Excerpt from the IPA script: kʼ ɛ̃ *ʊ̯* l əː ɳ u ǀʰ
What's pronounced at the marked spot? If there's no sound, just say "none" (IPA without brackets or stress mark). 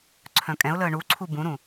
ʊ̯